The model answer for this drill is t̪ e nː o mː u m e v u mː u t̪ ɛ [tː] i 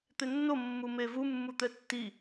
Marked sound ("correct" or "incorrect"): correct